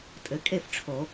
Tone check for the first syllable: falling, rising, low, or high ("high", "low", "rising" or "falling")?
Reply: rising